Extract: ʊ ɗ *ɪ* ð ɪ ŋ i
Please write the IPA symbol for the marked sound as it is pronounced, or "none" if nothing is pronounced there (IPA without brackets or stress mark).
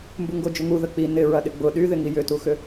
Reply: y